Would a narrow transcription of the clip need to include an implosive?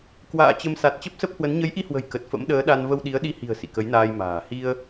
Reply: yes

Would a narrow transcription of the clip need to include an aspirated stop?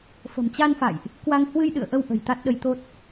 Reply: no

